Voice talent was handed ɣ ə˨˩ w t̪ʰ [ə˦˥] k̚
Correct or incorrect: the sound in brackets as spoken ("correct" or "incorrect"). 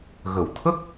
correct